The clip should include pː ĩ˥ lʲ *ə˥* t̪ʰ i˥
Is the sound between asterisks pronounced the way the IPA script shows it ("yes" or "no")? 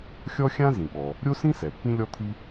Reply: no